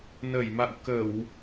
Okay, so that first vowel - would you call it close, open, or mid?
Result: mid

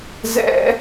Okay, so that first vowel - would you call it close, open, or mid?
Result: mid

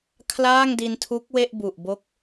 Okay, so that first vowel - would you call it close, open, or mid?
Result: open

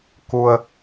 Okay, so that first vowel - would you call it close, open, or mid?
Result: close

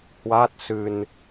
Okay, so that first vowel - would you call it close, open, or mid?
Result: open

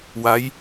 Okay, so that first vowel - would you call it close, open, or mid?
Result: open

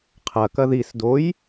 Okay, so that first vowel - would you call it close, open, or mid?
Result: open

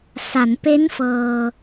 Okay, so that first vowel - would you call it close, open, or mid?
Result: open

